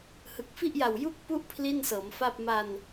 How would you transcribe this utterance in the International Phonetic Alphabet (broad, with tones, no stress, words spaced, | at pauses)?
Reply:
hɯ˨˩k̚fi˥˩ʔja˨˩w ju˦˥k̚ pu˦˥ʔ pʰli˥˩nsɤː˩˦mfa˥˩p̚ ma˧n